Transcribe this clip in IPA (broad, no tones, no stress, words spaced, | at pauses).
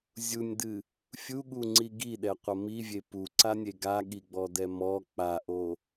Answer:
zʲunʲdɨ | fʲuɠuŋ͡ǀi ɡiɗɛqʷɐ mivʲe puǀanʲe ɡaɠiɡ͡bɔdɛ mɔ k͡paʔo